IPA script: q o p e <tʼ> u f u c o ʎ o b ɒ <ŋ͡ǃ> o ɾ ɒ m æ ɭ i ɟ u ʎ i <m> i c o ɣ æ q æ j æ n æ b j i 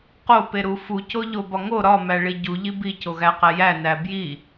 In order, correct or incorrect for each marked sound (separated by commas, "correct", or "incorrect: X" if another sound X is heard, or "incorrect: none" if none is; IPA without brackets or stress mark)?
incorrect: ɾ, incorrect: ŋ, incorrect: b